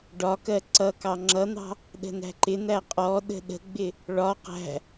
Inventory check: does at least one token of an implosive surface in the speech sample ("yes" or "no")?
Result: yes